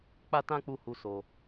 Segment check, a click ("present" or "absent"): absent